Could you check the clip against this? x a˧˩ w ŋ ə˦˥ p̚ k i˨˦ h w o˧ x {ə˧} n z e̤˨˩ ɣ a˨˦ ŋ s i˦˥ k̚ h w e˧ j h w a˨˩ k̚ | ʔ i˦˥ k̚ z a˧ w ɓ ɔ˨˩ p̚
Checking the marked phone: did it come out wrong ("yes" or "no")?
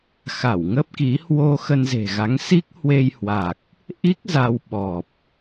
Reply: no